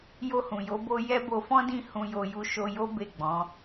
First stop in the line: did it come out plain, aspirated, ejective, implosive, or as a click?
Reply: plain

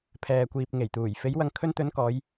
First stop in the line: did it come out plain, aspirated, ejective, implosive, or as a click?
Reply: aspirated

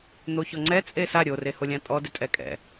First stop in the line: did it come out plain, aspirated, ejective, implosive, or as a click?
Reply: click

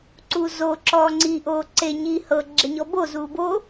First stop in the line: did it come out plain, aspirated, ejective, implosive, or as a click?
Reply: click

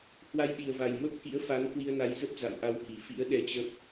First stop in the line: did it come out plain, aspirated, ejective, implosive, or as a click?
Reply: implosive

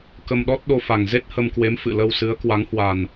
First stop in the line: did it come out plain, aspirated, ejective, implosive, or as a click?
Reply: plain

